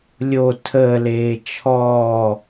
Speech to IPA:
lʲ o tʰ əː l eː t͡ʃʰ ɔː

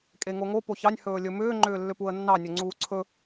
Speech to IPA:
kʼ e ŋ o ŋ o p o ç ɑ nʲ h ɵː lʲ ɵ m ʏː ŋ͡ǃ ʏː lː ʏ p u ə̯ nː ɑ nʲ ɵ ŋ͡ǀ uː ǀʰ ɵ

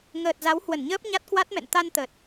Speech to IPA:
ŋ əː˨˩ t̚ z a˨˦ w h w ə˧˩ n ɲ əː˦˥ p̚ ɲ a˦˥ t̚ k w a˦˥ t̚ m ɛ̰˧˨ n t̪ a˧ n t̪ ə˨˩ t̚

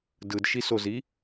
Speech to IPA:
d ɯ d ʃ i s o z i

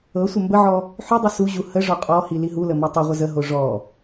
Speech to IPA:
ɤ sʷ ə m b ə ʕ ɔ | ħ y dˤ i s u ʑ u h ə ʐ ɔ qʼ ɔ h i l i ɦ u l ə m ɔ tˤ ə ʁʷ ə z ə ɦ o ʐ ɔ

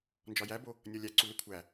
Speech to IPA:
n d͡ʒ ɒ j æ b o | nʲ ɒ lʲ æ ǀ u l e kʷʰ æ

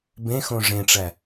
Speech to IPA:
b ẽ x õ ʐ ẽ ʈ͡ʂ æ

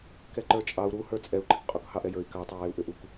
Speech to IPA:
k ɛ ǃ ə˞ t͡ʃʼ ɑ u̯ ɾ u h ə˞ t͡sʼ ɛ u̯ ǃ ɪ k qʼ u k h ɑ ʔ ɛ j ə˞ i̯ k ɑ tˤ ɛ w ɪ u̯ ʔ ʏ ʔ u k

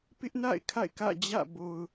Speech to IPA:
p ɪ˦ ʔ n a̰˦˨ ɪ̯ kʰ a̰˦˨ ɪ̯ k ä̰˦˨ d͡ʑ ä̰˦˨ b o˨ ʊ̯

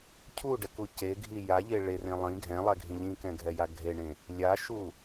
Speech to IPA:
cʰ u ɖ ɛ k u c e ɡʱ i j a ʎ e ɭ e r ẽ lˠ ĩ ɡʱ ɛ̃ lˠ ɛ ɡʱ ĩ ʎ ĩ k ɛ̃ ɡʱ ɛ j a ɡʱ e ɳ ẽ | lʲ a ʃ u

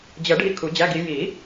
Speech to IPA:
d͡ʑ ə˨˩˦ ɖʱ i˦˨ kʰ u˨˩˦ d͡ʑ æ˧˥˧ ɡ i˨˦ j i˨˩˦

